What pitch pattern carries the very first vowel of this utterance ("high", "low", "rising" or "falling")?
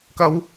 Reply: high